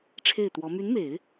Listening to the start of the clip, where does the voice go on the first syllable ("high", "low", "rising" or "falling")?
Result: falling